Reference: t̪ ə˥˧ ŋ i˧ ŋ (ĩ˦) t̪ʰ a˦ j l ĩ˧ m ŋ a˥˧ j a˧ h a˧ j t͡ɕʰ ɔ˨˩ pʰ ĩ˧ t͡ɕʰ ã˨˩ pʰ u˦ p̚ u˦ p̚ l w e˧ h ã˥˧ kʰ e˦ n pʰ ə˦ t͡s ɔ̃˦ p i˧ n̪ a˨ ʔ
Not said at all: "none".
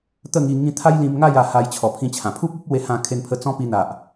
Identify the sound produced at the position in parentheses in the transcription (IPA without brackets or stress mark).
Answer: ĩ˧